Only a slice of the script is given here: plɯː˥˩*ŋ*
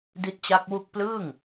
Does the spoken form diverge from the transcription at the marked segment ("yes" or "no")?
no